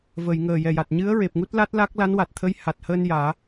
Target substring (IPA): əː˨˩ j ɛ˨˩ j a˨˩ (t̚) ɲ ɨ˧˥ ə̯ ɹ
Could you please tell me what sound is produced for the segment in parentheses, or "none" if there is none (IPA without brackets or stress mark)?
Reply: t̚